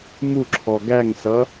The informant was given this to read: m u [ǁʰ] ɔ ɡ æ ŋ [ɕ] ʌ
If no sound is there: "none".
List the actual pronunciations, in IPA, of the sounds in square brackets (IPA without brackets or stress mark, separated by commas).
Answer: ǁʰ, s